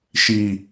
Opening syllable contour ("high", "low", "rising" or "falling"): low